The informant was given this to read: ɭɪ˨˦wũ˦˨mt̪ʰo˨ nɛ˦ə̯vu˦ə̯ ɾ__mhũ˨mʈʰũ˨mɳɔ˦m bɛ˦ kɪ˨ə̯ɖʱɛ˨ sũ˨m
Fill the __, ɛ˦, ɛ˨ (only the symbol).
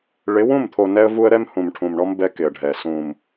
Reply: ɛ˦